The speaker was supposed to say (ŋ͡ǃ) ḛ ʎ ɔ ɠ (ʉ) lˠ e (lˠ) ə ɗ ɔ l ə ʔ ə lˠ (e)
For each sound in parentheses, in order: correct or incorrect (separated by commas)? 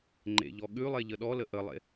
correct, correct, incorrect, incorrect